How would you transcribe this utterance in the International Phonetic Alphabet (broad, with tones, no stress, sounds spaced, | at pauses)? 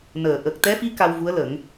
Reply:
n əː˨˩˨ ʔ ə˨˩ k̚ t̪ ɛ˧˥ f i˧˥ k a˧ w v u˧˥ ə̯ l ə˨˩˦ ŋ